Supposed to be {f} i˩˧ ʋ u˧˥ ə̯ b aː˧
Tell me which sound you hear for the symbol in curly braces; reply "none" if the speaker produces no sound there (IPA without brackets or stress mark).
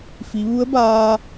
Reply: f